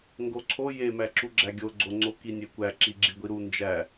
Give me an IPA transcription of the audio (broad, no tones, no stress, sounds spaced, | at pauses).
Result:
ŋ ɡ o ǀʰ o j e m æ ǁ u ɡ͡ǁ æ ɡʲ o ɡ͡ǀ o ŋ͡ǀ o k i nʲ e kʷ æ ǁ i ɡ͡ǁ i ɡʷ i ɾ u n d͡ʒ æ